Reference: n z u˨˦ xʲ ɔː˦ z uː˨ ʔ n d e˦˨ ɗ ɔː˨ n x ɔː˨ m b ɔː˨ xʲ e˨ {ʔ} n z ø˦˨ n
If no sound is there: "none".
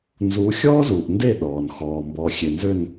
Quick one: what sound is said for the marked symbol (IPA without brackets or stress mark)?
none